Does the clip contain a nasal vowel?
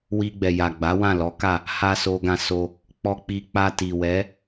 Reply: yes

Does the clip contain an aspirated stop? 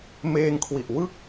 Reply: yes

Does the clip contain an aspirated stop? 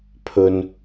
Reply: yes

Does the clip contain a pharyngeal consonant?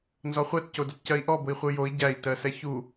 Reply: no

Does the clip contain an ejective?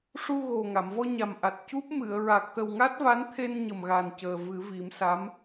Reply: no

